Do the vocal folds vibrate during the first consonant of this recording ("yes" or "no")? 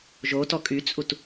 yes